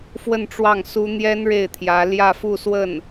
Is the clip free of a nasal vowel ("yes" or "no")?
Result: yes